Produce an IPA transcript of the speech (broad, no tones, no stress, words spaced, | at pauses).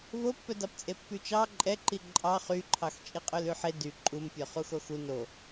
vopːœdɑpt͡sʼe pːyt͡ʃɑ ǃʼɛǃi ǃʼɑ χyǃʰɑx t͡ʃʼiqʼølʉħe dy ǃʼumpʲœ χuxoxu no